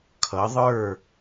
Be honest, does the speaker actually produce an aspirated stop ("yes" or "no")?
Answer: yes